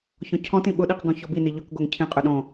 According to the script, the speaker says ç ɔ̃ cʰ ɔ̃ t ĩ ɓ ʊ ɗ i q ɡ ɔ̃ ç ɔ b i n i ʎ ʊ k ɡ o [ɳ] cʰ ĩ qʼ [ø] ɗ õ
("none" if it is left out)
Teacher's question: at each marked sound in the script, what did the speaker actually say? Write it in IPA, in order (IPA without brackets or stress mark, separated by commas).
ŋ, ø